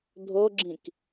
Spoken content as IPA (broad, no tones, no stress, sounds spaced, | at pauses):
dʱ o ɡ͡ǁ ĩ k